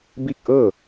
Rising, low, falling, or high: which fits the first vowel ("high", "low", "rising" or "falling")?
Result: falling